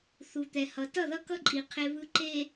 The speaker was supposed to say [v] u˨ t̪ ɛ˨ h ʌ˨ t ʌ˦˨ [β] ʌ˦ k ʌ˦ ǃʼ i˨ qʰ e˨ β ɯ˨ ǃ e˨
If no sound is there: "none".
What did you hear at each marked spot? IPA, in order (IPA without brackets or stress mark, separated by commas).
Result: θ, ð